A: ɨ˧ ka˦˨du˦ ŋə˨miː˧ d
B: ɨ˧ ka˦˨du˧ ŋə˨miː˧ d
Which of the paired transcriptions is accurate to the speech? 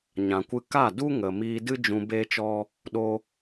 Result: A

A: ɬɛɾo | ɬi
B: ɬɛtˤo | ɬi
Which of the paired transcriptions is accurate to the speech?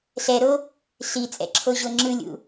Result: A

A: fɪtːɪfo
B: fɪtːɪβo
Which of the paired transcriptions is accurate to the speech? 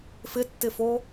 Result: A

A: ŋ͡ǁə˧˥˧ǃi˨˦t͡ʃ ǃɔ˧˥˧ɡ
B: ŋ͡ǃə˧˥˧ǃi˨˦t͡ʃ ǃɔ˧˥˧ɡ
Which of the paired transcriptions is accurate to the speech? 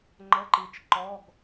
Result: B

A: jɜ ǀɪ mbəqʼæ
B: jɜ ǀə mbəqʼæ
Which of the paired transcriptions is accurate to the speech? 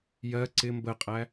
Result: A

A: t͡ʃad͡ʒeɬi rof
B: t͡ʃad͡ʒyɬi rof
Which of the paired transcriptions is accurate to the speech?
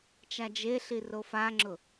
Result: A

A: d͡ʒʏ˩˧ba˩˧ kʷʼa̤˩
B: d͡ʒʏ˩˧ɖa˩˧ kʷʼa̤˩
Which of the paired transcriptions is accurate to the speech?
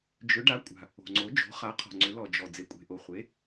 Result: B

